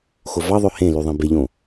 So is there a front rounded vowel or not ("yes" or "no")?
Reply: yes